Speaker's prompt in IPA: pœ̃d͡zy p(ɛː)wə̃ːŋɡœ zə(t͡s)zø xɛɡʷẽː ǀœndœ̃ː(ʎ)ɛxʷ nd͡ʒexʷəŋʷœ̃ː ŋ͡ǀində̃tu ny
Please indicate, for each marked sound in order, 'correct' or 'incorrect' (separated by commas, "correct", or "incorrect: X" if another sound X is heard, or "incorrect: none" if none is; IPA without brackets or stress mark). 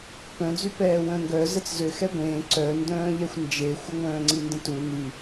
correct, correct, correct